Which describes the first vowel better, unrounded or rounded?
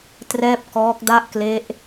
unrounded